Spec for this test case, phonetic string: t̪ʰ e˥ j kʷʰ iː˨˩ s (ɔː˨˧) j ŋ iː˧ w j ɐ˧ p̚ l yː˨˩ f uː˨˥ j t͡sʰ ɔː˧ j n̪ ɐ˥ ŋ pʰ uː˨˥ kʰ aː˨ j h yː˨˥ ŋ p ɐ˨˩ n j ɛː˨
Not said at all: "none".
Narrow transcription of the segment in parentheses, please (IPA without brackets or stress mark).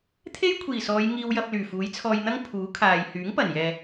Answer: ɔː˨˧